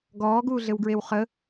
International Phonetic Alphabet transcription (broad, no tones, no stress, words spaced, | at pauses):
ɡɔːɡuːɮɘwɡɹew χə